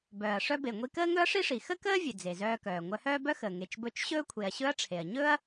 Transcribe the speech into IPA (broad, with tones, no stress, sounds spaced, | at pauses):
b œː˩ ɐ̯ ʂ œ˧ b e˩ ŋʷ i˧ k əː˥ ŋ ɵ˥ ɐ̯ ʂ i˥ ʂ i˩ x ə˥ k əː˥ vʲ ə˩ d͡z e˩ z œː˧ k œː˩ ŋʷ œ˧ h œː˥ b œ˥ x əː˩ ŋ e˩ t͡ʃ b ɵ˧ t͡ʃ ɕ ɵː˥ kʷʰ e˩ ɐ̯ ɕ ɵ˥ ɐ̯ ʈ͡ʂʰ e˩ ɐ̯ ɲ ɵː˥ ɐ̯